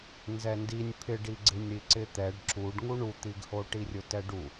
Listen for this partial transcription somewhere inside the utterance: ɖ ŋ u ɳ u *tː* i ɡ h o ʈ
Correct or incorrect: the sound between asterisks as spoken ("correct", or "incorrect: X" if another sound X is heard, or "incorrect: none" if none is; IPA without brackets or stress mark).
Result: incorrect: t̪